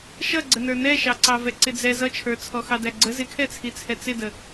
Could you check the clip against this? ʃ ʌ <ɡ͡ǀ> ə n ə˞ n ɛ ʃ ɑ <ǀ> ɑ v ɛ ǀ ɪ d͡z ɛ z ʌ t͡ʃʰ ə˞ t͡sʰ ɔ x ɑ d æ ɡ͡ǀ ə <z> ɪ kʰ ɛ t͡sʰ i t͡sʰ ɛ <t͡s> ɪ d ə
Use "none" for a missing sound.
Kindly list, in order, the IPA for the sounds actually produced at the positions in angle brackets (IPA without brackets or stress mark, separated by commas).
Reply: ɡ͡ǀ, ǀ, z, t͡s